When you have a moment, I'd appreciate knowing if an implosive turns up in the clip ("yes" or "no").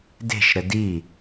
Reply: no